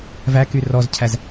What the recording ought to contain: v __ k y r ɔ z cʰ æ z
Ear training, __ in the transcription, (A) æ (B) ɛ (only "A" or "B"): A